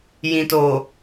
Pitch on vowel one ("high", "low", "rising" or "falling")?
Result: low